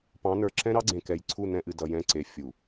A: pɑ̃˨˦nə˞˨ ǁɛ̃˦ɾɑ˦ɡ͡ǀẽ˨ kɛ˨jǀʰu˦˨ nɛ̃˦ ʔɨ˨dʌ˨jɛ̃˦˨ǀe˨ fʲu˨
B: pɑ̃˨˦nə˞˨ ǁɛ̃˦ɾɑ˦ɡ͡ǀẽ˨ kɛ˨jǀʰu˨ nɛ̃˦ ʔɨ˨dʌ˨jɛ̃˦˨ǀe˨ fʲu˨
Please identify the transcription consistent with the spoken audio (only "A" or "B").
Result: A